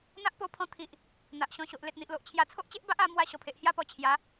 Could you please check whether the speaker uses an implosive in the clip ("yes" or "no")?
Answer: no